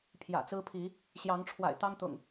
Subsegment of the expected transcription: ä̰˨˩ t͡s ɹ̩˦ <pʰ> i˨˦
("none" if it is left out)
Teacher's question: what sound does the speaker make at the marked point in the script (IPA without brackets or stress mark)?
pʰ